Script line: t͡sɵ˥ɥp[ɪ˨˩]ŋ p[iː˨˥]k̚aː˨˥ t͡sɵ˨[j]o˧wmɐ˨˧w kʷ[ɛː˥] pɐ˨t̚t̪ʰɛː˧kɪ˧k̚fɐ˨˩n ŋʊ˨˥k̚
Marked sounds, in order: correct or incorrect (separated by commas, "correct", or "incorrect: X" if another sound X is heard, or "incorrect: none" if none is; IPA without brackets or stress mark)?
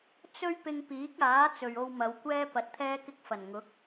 incorrect: ɪ˧, correct, incorrect: ɥ, incorrect: ɛː˧